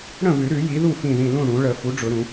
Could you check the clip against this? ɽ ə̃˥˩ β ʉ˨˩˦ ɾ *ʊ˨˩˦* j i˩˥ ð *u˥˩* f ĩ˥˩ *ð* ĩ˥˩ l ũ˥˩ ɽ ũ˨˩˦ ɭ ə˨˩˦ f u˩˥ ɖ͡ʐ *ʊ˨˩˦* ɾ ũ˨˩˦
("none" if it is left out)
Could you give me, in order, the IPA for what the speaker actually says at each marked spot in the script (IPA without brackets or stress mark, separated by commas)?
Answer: ʉ˨˩˦, u˥˩, ð, ʊ˨˩˦